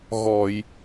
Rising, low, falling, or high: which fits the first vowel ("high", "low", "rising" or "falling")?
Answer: low